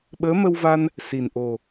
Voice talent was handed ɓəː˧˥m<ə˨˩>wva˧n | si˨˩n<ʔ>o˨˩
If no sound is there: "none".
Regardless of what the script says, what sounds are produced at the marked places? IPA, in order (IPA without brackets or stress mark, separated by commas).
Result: ə˧, ʔ